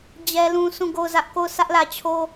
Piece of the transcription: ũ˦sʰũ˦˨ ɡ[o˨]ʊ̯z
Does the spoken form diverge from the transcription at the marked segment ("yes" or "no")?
yes